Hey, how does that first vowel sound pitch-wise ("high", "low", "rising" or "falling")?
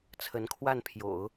rising